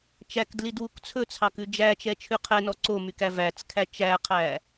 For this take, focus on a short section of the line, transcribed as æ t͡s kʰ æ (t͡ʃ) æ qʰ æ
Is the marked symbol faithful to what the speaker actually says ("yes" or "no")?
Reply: yes